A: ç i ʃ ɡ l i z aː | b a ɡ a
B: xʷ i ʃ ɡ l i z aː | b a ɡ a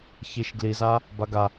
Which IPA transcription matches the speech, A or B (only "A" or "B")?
A